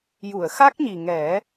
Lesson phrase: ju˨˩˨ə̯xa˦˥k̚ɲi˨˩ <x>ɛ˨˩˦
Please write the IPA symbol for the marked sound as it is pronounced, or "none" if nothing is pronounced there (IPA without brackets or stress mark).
ŋ